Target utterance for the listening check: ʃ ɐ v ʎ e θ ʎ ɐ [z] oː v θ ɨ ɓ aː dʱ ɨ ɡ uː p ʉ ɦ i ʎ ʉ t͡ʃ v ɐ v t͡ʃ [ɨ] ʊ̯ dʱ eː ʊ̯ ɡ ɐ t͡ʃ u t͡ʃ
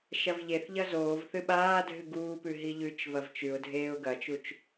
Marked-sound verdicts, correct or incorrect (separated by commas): correct, incorrect